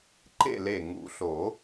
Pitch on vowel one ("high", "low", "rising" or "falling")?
falling